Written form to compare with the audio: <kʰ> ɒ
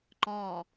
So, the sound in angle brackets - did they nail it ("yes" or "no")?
no